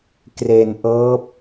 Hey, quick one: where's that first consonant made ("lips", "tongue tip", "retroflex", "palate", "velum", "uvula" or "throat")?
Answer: velum